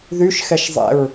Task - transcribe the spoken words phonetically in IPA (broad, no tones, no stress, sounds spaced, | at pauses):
ð y ʃ x ɛ ʃ zˤ ɛ̰ ɹ